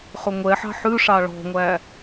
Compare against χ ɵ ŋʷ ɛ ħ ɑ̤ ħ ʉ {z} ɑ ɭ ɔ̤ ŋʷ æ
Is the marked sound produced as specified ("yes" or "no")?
no